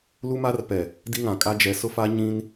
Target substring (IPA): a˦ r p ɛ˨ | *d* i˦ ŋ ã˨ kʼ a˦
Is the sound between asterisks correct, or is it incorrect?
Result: correct